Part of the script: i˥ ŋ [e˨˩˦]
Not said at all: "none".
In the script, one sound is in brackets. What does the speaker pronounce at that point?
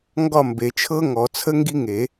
e˨˩˦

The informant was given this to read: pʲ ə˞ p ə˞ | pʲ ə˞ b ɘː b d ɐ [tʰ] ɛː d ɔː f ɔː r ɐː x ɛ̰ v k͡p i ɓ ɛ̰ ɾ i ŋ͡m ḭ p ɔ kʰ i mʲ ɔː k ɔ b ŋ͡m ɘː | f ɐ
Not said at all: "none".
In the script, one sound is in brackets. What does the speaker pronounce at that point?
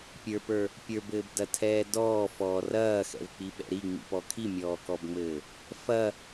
tʰ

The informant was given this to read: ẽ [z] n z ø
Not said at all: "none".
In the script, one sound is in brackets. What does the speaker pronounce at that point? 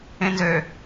none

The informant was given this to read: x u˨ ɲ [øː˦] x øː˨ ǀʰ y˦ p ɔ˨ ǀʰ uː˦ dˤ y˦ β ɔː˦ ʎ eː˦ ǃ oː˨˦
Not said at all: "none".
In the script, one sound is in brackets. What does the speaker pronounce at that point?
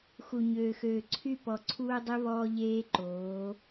øː˨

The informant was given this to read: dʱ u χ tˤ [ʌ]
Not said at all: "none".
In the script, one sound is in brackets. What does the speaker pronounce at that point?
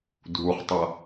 ʌ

